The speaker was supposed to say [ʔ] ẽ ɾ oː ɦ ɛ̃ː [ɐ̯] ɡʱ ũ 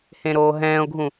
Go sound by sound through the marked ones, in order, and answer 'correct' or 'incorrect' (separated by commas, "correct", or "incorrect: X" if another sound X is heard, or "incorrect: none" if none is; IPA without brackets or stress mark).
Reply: incorrect: h, incorrect: o̯